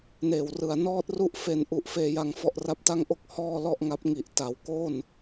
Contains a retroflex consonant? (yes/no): no